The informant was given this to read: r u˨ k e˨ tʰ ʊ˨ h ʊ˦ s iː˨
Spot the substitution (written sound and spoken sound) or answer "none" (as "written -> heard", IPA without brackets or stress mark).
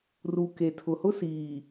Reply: none